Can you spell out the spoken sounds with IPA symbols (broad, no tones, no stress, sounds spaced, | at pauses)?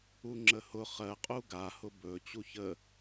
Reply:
u ŋ͡ǁ ə h ʊ χ ɜ qʼ u ɡ a h ʊ b ɵ t͡ɕ u ç ə